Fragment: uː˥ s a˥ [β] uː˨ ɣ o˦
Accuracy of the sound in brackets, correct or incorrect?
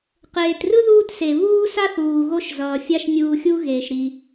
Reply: incorrect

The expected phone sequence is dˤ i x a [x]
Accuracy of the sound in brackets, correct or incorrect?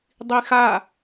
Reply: incorrect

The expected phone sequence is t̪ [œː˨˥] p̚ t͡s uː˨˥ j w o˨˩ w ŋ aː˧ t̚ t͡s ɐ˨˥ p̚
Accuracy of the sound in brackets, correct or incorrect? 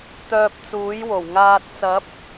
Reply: incorrect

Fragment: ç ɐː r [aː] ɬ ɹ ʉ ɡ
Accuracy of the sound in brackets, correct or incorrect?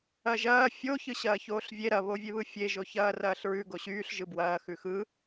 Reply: incorrect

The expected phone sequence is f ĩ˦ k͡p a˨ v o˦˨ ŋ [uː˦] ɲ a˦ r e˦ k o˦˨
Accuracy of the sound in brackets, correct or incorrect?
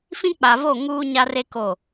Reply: correct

